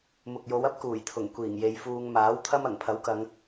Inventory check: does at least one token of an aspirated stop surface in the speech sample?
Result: yes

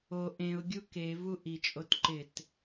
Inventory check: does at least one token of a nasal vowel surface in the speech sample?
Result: yes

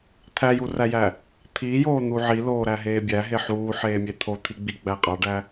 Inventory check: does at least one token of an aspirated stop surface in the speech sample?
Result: yes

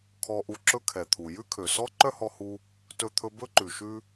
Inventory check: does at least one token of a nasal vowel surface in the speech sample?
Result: no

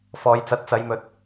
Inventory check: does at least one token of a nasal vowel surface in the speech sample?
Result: no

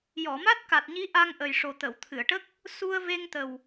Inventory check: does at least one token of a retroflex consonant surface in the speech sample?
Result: yes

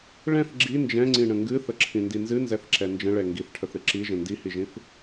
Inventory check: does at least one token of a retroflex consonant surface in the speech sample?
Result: yes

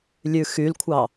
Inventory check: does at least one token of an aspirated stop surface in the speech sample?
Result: yes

